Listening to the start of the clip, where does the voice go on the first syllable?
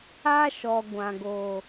high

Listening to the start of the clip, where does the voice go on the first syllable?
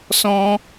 high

